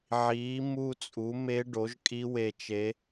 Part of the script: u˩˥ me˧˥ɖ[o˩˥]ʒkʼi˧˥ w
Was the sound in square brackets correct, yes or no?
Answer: yes